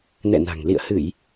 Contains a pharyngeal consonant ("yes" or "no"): no